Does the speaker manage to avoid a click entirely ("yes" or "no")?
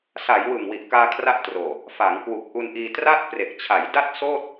yes